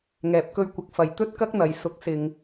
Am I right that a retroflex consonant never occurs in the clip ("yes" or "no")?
yes